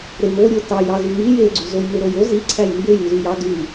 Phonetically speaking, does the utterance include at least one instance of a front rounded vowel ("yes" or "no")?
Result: yes